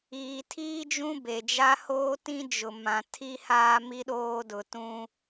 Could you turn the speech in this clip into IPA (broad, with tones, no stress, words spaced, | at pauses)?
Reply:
iː˨tʰiː˦d͡ʒũ˦ be˨d͡ʒa˦hoː˦ tĩ˦d͡ʒʊ˨mã˨ tʰi˦haː˦ mi˦ɗoː˦dʊ˨ tũ˦